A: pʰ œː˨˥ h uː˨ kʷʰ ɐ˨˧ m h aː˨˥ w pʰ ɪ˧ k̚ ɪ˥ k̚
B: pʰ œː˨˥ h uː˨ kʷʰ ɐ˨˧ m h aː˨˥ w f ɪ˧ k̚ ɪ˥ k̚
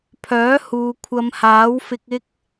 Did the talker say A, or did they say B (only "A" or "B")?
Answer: B